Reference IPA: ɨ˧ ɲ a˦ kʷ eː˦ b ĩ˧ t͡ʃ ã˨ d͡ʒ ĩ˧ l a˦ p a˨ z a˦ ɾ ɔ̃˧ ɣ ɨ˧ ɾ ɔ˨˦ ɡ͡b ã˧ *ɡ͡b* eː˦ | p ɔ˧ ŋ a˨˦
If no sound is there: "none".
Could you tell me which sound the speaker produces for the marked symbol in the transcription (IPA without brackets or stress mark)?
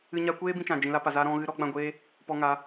ɡʷ